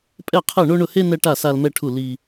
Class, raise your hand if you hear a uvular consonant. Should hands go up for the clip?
yes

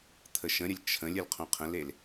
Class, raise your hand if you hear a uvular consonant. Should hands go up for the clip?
yes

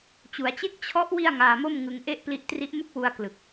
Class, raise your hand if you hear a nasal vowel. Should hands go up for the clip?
no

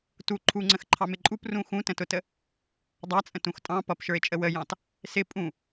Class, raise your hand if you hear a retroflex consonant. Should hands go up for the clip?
no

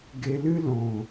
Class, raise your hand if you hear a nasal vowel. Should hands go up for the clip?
yes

